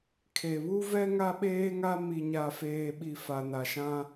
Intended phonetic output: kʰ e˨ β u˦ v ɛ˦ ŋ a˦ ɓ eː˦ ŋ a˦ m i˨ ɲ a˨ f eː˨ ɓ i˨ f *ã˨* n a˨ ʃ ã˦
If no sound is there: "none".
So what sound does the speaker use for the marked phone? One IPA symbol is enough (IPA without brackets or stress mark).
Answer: a˨